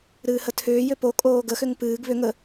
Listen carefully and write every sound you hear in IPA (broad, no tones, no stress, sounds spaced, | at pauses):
ɾ ɨː h ə tʰ ʏː j ʏ p o kʼ oː ɡ ə x ʏ ŋ p ɨː ɡ β ʏ ŋ ə